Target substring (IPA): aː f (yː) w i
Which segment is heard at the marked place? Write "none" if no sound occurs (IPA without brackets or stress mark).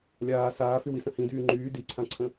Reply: y